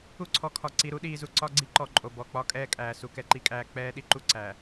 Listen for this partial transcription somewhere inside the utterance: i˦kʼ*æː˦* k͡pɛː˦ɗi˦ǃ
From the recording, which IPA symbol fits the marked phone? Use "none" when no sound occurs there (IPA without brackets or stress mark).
æː˦